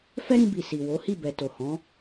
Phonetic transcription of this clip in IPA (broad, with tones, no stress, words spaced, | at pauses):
fɛ˦ɾĩ˧bi˨ si˨ wo˨˦hi˦˨ bɛ˨to˨hɔ̃˨˦